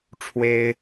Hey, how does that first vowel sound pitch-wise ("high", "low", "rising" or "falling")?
high